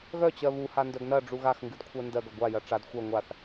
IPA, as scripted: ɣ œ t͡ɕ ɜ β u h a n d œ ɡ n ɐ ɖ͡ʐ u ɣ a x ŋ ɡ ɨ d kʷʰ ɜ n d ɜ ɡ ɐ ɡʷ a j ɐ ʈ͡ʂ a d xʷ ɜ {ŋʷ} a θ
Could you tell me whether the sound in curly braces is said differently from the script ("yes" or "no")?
no